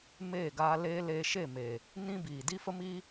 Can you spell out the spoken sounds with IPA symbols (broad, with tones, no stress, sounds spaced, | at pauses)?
m eː˦˨ ɡ aː˧ l eː˦ l eː˧ ʃ e˦˨ m e˨ | n ĩ˦ b iː˨ d i˦ f ə˦ m i˦